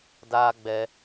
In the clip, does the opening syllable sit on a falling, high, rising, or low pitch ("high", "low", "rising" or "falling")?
high